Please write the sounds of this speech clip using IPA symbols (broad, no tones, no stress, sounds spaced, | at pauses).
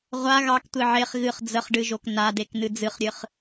ʁʷ a ɣ ɑ k tʷ e ʕ e χ ɣ ɨ χ d͡z ə χ ɖ ɨ ʒ o k n a d e k n ɨ d͡z ɨ χ ɾʲ ɨ χ